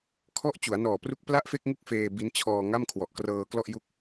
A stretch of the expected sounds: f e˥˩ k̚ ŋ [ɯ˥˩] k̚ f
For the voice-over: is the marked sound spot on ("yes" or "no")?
no